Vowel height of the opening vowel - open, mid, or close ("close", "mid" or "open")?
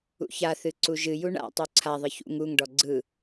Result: close